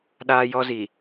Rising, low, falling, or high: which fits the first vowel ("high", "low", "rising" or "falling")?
high